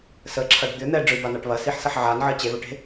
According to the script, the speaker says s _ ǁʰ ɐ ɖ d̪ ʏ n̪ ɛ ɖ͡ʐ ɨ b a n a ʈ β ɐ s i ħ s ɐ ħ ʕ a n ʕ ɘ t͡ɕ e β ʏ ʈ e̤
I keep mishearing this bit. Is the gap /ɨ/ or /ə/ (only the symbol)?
ə